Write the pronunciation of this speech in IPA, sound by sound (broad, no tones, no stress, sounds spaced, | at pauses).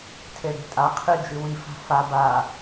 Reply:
tʰ e ɽ e̤ tʼ a qʰ i d͡ʒ ɨ w i f a̤ f a b a